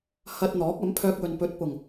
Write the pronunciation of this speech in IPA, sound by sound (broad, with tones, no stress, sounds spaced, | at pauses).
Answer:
h ɐ˧ t̚ n̪ ɔː˨˥ k̚ ɐ˨˥ m pʰ œː˧ k̚ w ɵ˨ n p ɵ˨˥ t̚ p ʊ˨˩ ŋ